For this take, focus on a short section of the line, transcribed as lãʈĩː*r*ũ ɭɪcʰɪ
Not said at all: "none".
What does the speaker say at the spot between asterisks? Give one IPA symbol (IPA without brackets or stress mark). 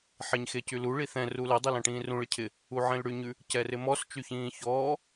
r